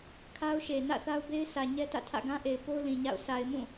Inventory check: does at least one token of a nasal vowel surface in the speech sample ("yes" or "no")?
yes